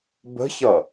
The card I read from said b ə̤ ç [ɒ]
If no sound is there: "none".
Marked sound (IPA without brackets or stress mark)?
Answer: ʌ